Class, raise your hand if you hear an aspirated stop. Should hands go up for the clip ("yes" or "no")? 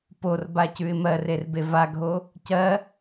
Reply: no